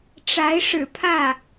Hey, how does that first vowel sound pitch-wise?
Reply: rising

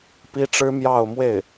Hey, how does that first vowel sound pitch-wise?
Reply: high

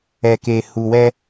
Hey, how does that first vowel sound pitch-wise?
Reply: low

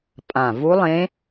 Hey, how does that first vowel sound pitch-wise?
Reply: low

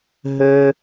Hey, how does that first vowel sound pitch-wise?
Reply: high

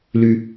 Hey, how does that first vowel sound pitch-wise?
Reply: low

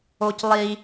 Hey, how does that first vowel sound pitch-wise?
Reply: high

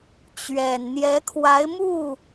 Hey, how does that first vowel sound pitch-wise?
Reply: low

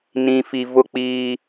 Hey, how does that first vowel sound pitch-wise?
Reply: low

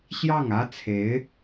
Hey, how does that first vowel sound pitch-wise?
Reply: falling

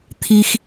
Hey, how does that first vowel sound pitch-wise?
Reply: high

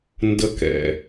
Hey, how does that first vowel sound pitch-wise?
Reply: high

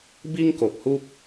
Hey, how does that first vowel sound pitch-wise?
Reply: high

